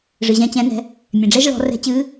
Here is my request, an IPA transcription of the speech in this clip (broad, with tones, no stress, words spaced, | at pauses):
ʐɨ˩ʑɛ̃˧ t͡ɕɛ̃˩˧nɛ̤˩˧ | mʲɛ̃˩ɖ͡ʐɛ˧ʒɭɔ̤˩˧ rɛ̤˧t͡ɕɨː˧˥